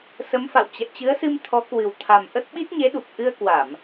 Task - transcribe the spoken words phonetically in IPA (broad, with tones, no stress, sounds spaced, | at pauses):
s ə˨˦ m f a̰˧˨ w t͡ɕ ɛ̰˧˨ t͡ɕ ɨ˨˦ ə̯ s ɨ˧ m t̪ʰ ɔ˨˦ k w ɨ˨˩ w t̪ʰ a˨˩ m ʔ ə˦˥ t̚ ɓ i˦˥ t̚ ɲ e˨˦ ɗ u˨˩ k̚ ʔ ɨ˧ ə̯ k w a˧˩˨ m